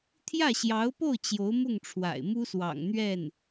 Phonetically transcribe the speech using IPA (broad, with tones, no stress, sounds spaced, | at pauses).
t̪ʰ j ä˥˩ ɕ j ɑ˧˥ ʊ̯ p o˥˩ ʊ̯ t͡ɕ j o˧˥ ʊ̯ m ʊ˥˩ ŋ ʈ͡ʂʰ w a̰˨˩ ɪ̯ m u˥ s w ɑ̰˨˩ ŋ n̪ ɥ ɛ˥˩ n